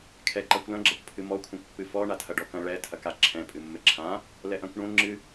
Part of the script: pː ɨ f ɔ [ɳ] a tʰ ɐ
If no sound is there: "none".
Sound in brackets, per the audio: ɳ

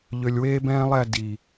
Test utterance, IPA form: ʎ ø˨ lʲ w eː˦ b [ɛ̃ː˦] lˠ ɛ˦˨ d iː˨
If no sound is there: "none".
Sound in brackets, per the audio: ɛ̃ː˦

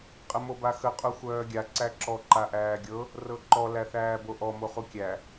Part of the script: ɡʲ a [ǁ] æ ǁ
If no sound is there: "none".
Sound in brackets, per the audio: ǀ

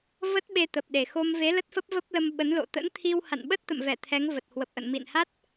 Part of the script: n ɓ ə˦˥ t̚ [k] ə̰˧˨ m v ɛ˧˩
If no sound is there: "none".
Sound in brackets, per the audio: t̪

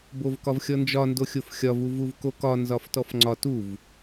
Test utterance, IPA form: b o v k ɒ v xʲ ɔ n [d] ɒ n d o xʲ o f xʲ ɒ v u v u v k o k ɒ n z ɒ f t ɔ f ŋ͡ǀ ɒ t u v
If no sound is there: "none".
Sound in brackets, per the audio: d͡ʒ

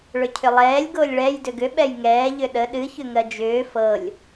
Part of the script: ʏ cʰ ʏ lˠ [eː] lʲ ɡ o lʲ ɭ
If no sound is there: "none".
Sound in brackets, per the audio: ɛː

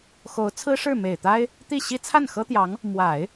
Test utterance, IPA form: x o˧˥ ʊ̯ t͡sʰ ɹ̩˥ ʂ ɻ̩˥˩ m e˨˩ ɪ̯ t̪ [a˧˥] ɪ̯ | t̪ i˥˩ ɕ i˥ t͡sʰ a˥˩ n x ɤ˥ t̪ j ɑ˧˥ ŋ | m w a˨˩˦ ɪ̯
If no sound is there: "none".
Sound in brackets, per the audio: a˥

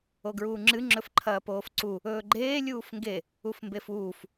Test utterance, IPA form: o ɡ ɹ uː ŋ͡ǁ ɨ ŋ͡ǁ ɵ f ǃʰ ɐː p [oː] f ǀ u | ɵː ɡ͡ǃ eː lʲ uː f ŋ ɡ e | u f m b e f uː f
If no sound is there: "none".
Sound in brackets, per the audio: oː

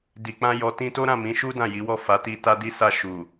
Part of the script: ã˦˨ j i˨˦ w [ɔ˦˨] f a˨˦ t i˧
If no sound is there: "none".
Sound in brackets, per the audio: ɔ˦˨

